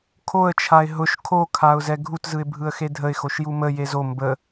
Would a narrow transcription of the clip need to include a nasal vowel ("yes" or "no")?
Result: no